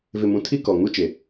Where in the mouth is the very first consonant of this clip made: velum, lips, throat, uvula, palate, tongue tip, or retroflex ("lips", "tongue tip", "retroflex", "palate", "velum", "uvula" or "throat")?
lips